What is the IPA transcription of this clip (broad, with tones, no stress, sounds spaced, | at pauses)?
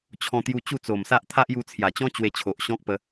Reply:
t͡ɕʰ ɔ̃˧ t̪ j u˧ t͡ɕ u˥˧ t͡s o˨˩ m s a˦ ʔ t̪ʰ a˦ ʔ j u˧ t͡sʰ j a˨˩ t͡ɕ ɔ̃˦ t͡ɕ w e˧ t͡ɕʰ o˨ ʔ ɕ ɔ̃˦ k̚ p ə˧